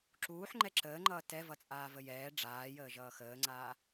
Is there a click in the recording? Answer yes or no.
yes